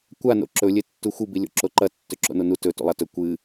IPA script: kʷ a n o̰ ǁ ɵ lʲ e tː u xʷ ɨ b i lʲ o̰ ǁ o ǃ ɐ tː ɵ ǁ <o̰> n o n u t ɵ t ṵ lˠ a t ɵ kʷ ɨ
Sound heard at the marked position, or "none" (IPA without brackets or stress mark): o̰